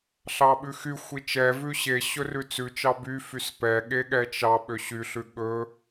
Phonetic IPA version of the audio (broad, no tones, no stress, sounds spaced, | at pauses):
ɬ ɑ ɓ ʉ x y xʷ i t͡ʃ ɛ v ʉ ɕ e ɕ ɵ r ʉ t͡s ʉ t͡ʃ ɑ b y f y s p ɛ ɠ e ɠ ɛ t͡ʃ ɑ ɓ ø ɕ y ɬ ʉ ɠ ɵ